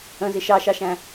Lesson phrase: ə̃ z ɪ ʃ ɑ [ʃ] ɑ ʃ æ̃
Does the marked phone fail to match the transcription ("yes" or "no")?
no